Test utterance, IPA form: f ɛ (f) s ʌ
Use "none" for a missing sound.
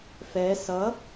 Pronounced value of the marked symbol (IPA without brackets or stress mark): none